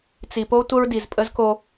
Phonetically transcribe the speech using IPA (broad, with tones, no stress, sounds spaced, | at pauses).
t͡s i˨ p o˦ tʷ ə˦ ɹ d i˨ z pʼ ə˦ z k o˦